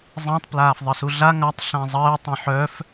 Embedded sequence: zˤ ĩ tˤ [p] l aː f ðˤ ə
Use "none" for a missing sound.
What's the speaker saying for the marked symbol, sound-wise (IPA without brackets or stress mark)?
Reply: p